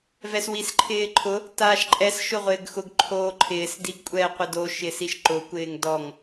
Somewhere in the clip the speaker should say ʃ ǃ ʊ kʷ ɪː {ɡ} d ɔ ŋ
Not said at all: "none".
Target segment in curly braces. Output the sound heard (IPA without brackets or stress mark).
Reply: ŋ